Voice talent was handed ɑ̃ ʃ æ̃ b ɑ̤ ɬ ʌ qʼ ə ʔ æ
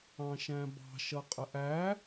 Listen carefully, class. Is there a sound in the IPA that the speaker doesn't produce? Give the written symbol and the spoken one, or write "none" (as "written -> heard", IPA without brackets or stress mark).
ɬ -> ʃ